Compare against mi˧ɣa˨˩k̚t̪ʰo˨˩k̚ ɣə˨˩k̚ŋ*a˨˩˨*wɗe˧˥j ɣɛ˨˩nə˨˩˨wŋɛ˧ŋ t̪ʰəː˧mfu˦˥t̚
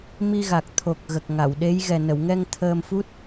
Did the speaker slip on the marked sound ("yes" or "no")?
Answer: no